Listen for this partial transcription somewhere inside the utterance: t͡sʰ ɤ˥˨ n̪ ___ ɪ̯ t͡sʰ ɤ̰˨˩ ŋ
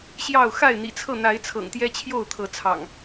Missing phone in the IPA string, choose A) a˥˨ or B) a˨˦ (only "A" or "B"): B